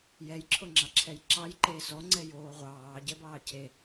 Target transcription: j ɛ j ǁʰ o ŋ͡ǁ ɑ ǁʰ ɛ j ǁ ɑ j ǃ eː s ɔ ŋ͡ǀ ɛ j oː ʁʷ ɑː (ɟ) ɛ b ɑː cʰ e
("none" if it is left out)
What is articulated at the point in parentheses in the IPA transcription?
ɟ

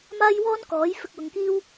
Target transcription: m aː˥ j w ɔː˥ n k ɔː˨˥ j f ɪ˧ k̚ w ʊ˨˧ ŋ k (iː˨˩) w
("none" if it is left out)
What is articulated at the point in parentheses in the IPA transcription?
iː˥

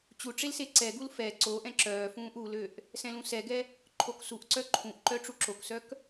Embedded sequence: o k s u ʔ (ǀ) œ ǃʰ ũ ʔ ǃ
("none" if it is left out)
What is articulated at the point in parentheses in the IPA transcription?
ǀ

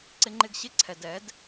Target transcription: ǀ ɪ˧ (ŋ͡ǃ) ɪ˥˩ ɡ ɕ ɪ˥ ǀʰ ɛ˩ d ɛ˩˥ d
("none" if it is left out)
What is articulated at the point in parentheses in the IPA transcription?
ŋ͡ǃ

